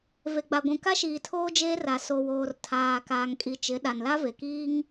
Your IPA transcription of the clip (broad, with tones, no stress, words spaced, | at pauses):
ve˨ɡ͡ba˨ɡʷũ˨ ka˦ʃiː˨ tʰoː˦d͡ʒeː˦ra˨ so˨woː˨r tʰaː˨kaː˨ŋkʼi˨t͡ʃɪ˨˦ ɗa˨nla˦ve˨kiː˦ŋ